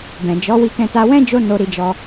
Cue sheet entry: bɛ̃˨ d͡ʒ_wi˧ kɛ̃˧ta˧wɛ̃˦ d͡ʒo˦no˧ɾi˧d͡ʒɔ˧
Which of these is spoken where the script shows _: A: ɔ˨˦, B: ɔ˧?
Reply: A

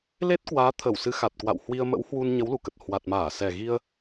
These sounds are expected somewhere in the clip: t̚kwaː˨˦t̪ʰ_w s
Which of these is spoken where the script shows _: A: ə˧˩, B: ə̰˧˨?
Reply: A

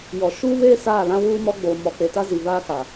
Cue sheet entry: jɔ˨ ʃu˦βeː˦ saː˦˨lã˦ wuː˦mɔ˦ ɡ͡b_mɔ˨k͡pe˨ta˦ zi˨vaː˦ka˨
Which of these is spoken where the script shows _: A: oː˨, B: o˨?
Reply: A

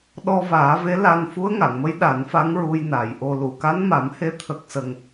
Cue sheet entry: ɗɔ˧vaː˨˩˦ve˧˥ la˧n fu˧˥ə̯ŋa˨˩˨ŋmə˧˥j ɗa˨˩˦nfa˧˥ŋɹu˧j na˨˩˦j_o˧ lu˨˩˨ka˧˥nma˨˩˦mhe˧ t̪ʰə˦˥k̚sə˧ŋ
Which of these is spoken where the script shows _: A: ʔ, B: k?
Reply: A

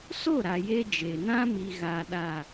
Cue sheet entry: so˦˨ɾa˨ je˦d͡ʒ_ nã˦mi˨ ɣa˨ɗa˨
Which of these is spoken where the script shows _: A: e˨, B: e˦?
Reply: A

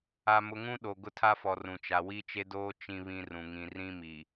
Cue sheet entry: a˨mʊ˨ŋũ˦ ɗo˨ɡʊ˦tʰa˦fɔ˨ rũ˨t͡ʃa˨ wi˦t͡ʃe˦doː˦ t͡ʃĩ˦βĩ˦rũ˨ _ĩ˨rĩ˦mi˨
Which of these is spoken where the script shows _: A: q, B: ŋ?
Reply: B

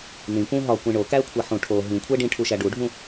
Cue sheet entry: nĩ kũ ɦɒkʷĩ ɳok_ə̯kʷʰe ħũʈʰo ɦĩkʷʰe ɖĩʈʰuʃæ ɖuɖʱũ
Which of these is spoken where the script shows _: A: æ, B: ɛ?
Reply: A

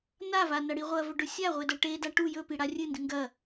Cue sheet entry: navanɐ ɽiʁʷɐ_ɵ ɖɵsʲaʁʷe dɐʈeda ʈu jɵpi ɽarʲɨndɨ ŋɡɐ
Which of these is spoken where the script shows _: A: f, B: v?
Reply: B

